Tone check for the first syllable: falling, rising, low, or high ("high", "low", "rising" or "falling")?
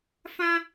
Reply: high